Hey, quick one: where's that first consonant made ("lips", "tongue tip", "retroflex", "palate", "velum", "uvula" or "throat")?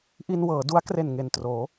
throat